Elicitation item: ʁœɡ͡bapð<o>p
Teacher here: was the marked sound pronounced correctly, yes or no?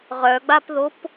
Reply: yes